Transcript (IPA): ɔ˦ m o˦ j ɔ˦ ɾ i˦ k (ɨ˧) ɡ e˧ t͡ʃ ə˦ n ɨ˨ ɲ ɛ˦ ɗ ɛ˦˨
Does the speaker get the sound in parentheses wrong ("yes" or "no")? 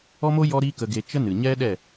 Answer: yes